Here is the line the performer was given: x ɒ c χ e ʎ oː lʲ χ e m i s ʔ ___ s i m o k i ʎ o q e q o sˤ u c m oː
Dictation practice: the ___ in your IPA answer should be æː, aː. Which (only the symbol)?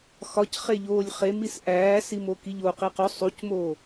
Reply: æː